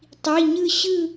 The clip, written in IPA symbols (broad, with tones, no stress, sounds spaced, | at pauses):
tˤ i˩˧˩ ɲ ɯ˦˨ ɕ ɯ˦˨